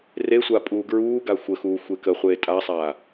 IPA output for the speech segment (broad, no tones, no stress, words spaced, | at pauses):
resʷa pʼuːɡɹuːɡa xʷəxuː xʷekəχʷeː tʼasˤaː